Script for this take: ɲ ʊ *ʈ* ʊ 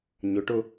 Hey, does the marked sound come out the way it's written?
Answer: yes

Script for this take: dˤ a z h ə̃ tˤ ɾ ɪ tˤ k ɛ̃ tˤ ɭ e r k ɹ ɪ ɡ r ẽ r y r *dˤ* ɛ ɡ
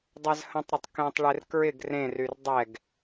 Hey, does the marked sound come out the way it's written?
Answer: yes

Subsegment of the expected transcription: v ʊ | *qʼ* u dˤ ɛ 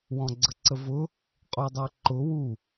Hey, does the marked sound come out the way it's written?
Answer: yes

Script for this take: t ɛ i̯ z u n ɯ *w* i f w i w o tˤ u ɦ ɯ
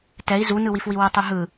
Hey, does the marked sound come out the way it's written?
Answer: yes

